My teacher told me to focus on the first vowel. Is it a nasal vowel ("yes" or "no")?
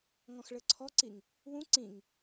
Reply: yes